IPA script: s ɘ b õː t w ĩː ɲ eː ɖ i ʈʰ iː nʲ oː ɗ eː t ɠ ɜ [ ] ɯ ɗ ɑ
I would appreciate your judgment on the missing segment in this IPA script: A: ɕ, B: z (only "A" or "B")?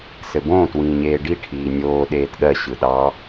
A